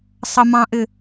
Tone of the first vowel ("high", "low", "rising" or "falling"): high